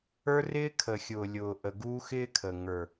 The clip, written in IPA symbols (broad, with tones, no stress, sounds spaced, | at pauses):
ə˞˦ r ɪː˦ kʰ ə˨ xʲ ʊː˨ lʲ ʊː˨ ʔ ə˨ ɡ uː˦ x ɪː˦ kʰ ə˨ ŋ ə˞˨